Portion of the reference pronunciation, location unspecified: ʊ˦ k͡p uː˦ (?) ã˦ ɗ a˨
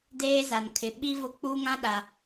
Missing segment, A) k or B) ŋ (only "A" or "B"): B